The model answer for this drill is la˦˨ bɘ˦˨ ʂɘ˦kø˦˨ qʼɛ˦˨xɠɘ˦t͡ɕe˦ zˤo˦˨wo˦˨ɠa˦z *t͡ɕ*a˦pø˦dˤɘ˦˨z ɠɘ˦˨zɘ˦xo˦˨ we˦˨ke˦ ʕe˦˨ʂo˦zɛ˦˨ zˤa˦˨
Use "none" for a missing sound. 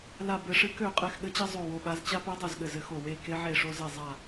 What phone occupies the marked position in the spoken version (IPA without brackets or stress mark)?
t͡ɕ